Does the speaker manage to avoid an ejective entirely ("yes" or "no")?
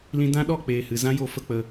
yes